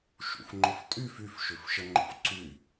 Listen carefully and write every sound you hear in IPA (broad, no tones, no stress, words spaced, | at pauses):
ʃṵfŋ͡ǃʊftʼyf yfʃʏfʃə ŋ͡ǃo̰fǀy